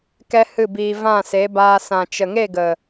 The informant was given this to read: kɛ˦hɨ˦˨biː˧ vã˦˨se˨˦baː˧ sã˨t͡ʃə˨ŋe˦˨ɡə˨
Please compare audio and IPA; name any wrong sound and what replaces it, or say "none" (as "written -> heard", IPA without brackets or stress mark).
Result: none